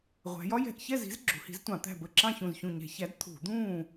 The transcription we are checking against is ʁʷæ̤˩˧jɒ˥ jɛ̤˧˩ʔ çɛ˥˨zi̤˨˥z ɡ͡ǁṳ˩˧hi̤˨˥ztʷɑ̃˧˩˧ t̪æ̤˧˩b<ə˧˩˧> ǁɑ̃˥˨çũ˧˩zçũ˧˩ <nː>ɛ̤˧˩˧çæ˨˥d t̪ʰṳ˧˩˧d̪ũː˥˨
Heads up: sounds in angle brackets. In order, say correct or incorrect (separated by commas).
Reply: incorrect, incorrect